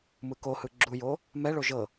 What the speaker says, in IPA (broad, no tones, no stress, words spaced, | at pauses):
mɯkohɯ ɡ͡ǁujo | mɛɭo ʒɤ